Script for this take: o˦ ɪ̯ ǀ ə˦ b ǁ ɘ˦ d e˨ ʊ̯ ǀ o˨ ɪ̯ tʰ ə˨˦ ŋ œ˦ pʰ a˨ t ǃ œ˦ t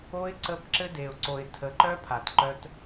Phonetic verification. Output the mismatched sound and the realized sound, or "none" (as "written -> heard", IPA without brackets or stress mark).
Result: ŋ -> ǃ